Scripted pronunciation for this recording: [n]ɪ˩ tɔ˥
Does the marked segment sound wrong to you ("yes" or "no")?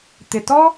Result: yes